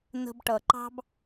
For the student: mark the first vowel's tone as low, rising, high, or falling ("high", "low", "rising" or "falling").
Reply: low